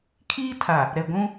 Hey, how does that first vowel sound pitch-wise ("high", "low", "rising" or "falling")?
high